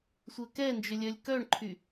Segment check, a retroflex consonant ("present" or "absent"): present